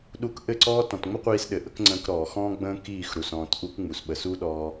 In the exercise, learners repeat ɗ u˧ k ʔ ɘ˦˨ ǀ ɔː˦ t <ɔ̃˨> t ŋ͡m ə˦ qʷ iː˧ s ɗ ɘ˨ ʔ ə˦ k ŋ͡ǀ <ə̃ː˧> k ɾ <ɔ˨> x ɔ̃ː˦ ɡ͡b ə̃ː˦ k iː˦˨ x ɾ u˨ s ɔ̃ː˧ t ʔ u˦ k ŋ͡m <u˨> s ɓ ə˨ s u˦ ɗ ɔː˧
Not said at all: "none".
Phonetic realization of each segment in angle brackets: ɔ̃˨, ə̃ː˧, ɔː˨, u˨

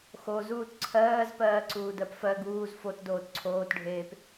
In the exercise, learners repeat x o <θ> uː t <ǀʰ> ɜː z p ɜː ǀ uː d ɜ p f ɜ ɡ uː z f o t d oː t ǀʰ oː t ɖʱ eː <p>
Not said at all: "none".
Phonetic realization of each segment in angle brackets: z, ǀʰ, p

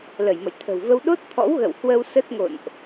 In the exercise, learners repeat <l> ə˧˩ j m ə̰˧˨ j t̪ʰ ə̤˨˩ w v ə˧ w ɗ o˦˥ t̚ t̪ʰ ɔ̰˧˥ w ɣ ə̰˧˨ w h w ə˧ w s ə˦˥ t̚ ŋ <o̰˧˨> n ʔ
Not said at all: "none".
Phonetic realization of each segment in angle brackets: l, o̰˧˨

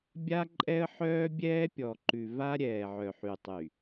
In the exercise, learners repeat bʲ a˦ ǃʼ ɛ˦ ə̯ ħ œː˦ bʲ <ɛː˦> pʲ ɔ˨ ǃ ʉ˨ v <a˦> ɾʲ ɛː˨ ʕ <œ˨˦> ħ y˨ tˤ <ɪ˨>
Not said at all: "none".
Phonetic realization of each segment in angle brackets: ɛː˦, a˦, œ˨, y˨

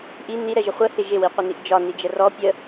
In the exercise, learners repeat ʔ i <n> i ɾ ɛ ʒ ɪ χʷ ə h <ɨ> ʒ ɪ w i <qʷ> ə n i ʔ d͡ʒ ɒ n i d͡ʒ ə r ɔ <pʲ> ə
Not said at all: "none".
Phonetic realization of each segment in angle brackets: n, ɪ, qʷ, pʲ

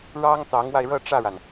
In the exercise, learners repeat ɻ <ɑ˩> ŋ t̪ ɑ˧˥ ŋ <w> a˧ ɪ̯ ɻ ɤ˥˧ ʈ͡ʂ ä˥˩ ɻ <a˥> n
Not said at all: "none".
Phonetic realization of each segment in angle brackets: ɑ˥, w, a˩

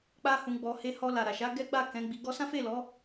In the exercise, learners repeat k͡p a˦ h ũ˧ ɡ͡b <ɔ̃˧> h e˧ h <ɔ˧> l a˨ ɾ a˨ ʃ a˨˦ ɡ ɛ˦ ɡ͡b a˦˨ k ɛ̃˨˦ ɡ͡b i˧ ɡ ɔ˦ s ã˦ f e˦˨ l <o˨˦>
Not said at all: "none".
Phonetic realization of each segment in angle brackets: ɔ˧, ɔ˧, ɔ˨˦

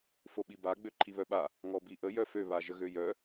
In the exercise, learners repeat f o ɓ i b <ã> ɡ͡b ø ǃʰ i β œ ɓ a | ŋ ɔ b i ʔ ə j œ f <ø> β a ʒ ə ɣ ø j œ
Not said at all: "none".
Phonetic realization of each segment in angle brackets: a, ø

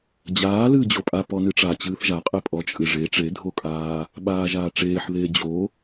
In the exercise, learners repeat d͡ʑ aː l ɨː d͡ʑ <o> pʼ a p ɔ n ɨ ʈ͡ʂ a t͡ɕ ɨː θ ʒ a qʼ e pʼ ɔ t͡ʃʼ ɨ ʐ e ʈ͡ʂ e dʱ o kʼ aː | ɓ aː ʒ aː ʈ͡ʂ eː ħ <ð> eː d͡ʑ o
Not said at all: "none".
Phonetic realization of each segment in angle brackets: o, ð

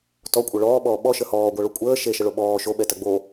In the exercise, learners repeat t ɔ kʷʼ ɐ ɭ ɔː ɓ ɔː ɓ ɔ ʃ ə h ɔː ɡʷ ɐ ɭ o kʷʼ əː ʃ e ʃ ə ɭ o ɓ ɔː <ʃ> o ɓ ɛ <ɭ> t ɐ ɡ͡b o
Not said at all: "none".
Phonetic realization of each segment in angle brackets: ʃ, none

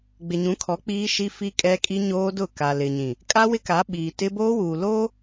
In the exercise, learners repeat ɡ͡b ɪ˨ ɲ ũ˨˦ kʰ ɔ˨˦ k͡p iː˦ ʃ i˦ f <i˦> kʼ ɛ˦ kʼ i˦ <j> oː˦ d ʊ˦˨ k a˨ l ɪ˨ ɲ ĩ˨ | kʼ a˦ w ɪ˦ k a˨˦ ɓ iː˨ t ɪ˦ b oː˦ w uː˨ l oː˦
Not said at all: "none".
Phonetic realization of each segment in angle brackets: i˦, ɲ

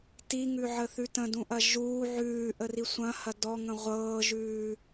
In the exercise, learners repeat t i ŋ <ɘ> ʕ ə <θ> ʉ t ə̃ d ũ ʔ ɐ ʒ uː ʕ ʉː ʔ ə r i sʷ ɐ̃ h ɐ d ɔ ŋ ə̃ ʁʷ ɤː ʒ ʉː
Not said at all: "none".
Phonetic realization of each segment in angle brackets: ʉ, θ

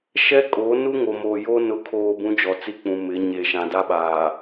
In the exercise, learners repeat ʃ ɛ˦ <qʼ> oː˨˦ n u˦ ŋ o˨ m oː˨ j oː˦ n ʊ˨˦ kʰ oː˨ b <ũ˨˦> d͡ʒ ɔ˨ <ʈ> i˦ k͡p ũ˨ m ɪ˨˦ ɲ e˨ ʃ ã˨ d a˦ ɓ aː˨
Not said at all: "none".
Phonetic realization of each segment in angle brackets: kʼ, ũ˨˦, t͡s

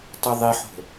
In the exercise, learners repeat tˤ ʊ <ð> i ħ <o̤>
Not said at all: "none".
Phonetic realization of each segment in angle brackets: ðˤ, o̤

